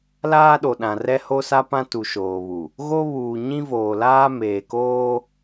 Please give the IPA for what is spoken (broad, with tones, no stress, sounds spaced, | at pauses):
l aː˦ ɗ o˨ ɗ ã˨ r ɛ˦ h o˦ s a˦ p ã˦ t u˨ ʃ oː˨ β u˨ | ɣ o˦ β uː˨ ɲ ĩ˦ v oː˨ l aː˦ m eː˨ k oː˦